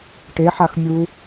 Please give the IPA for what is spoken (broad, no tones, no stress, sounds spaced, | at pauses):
ʈ e ħ a x mʲ u